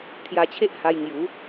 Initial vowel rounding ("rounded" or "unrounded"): unrounded